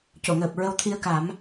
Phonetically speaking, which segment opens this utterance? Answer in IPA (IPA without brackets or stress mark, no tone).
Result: c